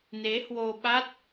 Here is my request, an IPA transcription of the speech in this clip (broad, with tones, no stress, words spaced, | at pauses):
ne˨˦hwo˧ɓa˦˥t̚